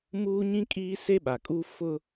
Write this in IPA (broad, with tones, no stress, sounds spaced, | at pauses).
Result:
m uː˦ ɲ ĩ˦ kʼ iː˦ s e˦ ɓ a˨ kʼ u˦ f ʊ˦